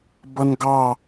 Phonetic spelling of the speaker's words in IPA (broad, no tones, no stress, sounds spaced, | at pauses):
b ʌ n ɡ ɑ